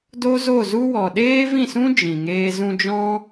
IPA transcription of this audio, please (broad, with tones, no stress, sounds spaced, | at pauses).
d o˦ z o˦˨ z u˦ w ɔ˨ ɗ eː˦ v ĩ˦˨ s ũ˦ d͡ʒ ĩ˨ ŋ eː˦ z ũ˧ d͡ʒ ɔ̃˦